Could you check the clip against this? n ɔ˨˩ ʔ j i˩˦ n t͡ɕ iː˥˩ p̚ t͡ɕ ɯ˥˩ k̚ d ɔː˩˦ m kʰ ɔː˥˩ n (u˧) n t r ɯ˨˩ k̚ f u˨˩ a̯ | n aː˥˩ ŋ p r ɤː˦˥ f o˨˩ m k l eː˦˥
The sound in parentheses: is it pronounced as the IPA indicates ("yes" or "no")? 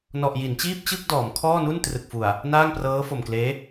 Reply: no